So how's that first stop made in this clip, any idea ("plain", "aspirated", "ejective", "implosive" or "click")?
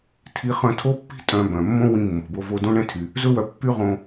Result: aspirated